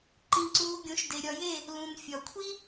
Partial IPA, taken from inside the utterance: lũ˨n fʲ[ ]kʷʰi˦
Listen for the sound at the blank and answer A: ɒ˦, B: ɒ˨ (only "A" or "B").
B